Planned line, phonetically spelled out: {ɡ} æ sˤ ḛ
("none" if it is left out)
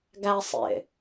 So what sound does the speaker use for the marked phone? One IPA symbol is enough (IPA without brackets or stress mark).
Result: ɡ